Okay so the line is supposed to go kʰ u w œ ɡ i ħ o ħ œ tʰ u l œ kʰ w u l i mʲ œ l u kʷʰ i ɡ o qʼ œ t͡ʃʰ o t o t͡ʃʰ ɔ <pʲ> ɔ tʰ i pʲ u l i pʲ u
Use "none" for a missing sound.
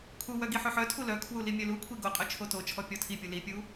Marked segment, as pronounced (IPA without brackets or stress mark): pʲ